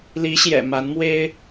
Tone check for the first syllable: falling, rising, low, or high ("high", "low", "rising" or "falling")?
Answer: rising